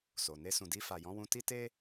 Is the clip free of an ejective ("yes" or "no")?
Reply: yes